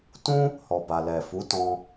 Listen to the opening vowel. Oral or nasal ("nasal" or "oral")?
nasal